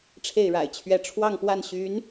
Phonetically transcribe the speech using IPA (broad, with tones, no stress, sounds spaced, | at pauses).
ʈ͡ʂʰ e˥˩ ɪ̯ ɻ a̰˨˩ ɪ̯ t͡ɕʰ ɥ ɛ˧˥ ʈ͡ʂʰ w ɑ˥˧ ŋ p w a˥˩ n ɕ y˧˥ n